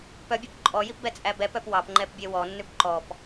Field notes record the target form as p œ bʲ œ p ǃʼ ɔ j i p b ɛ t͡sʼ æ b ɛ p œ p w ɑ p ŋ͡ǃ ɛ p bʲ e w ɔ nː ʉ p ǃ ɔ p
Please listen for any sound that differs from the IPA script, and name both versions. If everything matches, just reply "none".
none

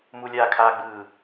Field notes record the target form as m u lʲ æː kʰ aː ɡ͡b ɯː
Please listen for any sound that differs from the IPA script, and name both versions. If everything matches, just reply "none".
æː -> aː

